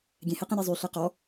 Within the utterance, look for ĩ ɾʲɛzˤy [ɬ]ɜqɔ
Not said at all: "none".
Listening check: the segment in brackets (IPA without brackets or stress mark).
ɬ